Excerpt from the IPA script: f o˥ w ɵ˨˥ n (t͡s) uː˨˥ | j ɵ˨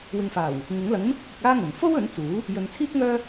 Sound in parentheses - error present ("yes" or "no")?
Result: no